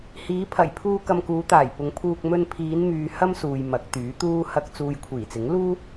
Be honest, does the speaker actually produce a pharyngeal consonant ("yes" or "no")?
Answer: no